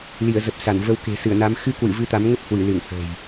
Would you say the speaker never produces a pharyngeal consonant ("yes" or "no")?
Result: yes